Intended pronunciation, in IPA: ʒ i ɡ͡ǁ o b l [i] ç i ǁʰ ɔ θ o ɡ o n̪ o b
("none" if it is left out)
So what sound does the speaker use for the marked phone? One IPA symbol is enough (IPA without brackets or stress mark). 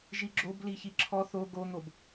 i